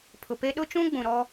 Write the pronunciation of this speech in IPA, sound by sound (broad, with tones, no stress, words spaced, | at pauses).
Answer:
pʰʊ˨pe˦ ɗʊ˦t͡ʃũ˦ ɡ͡bũ˨ɾɔ˦